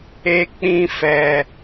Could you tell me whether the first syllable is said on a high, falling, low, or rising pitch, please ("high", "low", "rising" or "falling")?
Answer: high